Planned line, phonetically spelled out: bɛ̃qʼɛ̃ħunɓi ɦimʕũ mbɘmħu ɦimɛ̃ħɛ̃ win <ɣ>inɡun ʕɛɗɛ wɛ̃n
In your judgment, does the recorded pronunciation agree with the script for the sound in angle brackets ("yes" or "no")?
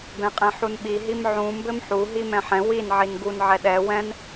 no